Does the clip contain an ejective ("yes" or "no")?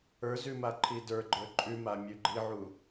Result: yes